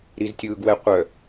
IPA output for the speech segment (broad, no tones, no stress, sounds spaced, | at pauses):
ɾ i z tʲ ɯː ɡ w ɛ qʷ œ